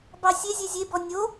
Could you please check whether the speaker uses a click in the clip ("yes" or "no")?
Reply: no